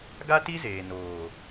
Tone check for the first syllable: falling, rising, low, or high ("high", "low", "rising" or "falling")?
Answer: high